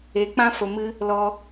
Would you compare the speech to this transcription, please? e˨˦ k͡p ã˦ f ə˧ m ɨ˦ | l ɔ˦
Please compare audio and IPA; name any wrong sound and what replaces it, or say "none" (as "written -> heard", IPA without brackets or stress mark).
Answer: none